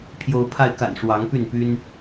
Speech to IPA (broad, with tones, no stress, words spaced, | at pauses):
pʰjo˨˦ʊ̯pʰa˧ɪ̯ka̰˨˩n ʂwɑ˨˦ŋpy˥˨npy˦n